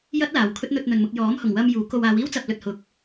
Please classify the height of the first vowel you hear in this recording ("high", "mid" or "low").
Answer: low